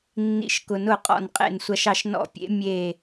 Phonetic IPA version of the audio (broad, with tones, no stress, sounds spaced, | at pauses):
nː ḭ˧˩ ʃ k ʊ˨˩˦ n ʊ˧˩ qʼ ɔ̰˧˩ n qʼ ḛ˧˩ n sʷ ɐ˧˩ ʃ ɑ˧˩ ʃ n ɔ̰˧˩ pʲ ḛ˨˩˦ mʲ e˧˩